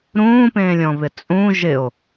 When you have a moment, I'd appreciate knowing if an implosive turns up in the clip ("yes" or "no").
no